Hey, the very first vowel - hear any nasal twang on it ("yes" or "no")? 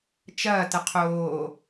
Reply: no